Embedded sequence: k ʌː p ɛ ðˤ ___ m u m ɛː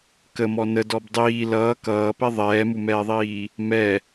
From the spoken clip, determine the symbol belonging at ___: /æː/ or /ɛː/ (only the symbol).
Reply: ɛː